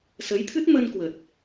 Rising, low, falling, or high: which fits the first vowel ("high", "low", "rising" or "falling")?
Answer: rising